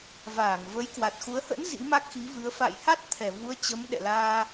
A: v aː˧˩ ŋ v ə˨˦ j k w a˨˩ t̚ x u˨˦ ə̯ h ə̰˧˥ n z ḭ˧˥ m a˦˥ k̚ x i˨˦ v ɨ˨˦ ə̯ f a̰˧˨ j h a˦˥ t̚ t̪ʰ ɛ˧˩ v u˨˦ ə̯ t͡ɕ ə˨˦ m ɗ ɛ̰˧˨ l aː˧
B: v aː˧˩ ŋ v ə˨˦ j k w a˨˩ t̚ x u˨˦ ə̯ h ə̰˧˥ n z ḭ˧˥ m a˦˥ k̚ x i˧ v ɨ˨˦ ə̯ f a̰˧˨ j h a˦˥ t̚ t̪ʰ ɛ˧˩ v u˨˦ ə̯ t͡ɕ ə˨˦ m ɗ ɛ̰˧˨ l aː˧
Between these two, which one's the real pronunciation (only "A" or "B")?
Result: A